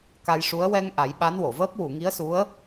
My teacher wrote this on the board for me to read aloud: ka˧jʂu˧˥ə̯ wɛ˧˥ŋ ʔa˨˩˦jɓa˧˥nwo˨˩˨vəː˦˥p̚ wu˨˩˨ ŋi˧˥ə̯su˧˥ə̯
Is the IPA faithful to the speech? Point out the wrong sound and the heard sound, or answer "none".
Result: ɛ˧˥ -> ɛ˧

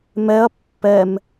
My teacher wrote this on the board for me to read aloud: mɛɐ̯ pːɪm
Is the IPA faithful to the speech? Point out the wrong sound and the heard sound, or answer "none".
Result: ɪ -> ɛ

